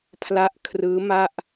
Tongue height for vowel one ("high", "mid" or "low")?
low